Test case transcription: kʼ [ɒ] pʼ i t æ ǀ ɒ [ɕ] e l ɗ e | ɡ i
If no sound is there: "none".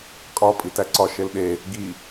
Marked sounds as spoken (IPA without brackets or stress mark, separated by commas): ɒ, ʃ